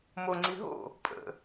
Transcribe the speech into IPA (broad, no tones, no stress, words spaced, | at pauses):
moŋ͡ǀi ɦo̰ | pʼə̰